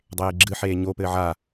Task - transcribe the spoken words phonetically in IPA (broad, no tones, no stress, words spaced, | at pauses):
dˤeːɡ͡ǁɨħeː ɲopɘː ʕa